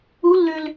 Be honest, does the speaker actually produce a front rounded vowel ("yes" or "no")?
yes